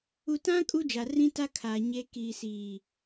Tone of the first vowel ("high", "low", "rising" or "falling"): low